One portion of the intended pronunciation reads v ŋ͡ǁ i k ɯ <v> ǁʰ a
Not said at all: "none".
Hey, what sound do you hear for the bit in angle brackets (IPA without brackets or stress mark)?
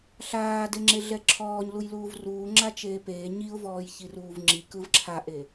v